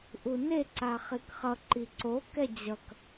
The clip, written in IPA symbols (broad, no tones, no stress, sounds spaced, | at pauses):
ʔ u n e ǀ a χ i k χ ʌ ǃ i ǀ o k ɛ d͡ʑ ʌ k